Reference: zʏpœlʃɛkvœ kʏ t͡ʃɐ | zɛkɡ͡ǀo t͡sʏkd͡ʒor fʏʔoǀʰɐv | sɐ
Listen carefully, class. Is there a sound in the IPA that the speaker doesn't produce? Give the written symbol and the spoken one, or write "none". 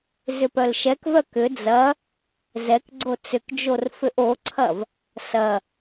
t͡ʃ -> d͡z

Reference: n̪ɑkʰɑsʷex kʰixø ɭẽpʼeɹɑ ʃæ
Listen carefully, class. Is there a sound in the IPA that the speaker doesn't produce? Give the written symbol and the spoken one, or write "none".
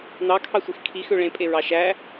none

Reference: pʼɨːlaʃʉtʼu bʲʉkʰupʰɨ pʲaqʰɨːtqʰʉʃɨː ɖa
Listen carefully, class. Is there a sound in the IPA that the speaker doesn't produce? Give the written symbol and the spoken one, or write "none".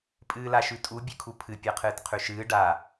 none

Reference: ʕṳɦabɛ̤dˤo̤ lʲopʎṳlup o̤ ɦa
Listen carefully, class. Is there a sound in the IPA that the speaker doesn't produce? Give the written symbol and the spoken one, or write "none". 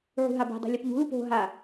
none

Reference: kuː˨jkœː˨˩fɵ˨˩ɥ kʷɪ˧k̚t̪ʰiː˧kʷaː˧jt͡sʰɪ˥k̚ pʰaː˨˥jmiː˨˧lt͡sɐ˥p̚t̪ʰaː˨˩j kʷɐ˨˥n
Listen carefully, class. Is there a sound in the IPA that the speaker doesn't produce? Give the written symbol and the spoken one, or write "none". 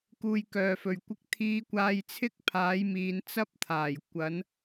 l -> n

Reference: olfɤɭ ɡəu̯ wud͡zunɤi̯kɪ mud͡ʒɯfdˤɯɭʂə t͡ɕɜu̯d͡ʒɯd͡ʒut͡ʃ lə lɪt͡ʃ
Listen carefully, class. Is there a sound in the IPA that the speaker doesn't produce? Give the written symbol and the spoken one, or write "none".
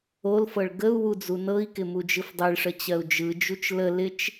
none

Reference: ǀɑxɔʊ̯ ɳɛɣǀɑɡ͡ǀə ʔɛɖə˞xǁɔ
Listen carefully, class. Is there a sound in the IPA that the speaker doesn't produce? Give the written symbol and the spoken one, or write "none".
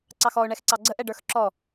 ɣ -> x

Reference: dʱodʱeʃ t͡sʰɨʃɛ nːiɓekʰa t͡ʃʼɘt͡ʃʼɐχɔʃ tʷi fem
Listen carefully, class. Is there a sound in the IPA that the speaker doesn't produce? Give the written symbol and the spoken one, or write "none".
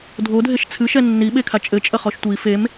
none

